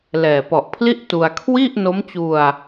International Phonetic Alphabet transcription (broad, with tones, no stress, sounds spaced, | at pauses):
l ɛː˨˩ p ɔ˨˩ ʔ pʰ l i˥˩ ʔ t u˧ a̯ kʰ w i˥˩ ʔ n o˦˥ m t͡ɕ u˧ a̯